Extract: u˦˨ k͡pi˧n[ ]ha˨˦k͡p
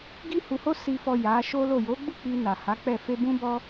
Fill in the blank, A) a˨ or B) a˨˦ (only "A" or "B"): A